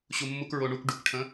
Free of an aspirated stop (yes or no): no